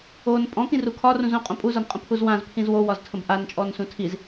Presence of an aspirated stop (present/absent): present